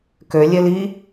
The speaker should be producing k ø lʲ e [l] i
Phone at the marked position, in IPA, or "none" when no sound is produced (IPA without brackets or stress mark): l